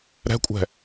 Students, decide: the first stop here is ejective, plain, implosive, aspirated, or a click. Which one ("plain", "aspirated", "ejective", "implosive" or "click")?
ejective